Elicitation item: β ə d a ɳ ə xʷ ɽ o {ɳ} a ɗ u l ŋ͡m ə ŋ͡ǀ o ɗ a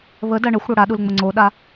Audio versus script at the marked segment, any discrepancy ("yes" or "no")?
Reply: yes